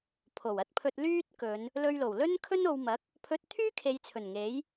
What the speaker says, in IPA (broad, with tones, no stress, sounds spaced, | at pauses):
pʰ o˨˩ w ɐ˧ t̚ pʰ ɵ˧ t̚ l yː˥ t̚ k ɵ˨˧ n | l ɵ˧ ɥ l o˨˩ w l ɵ˥ n kʰ ɵ˥ n o˨˧ w m ɐ˨˥ k̚ | pʰ ɵ˧ t̚ t̪ʰ yː˥ kʰ e˨˧ j t͡sʰ ɵ˨˩ n ŋ e˨˥ j